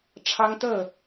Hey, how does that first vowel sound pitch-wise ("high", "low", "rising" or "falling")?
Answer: high